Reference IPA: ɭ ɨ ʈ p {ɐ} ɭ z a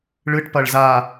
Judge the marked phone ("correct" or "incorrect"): correct